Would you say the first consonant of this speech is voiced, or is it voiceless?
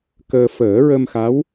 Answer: voiceless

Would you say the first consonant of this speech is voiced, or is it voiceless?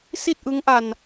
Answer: voiceless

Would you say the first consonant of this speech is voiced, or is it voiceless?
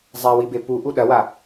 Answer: voiced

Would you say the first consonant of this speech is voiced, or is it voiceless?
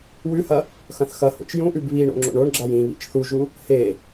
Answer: voiced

